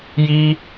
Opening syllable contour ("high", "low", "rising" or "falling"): high